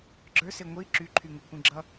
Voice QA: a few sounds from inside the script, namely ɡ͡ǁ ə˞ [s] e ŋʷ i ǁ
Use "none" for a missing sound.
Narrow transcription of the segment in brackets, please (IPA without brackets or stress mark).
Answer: s